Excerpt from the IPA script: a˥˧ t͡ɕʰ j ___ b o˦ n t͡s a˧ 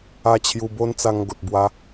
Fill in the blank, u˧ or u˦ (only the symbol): u˧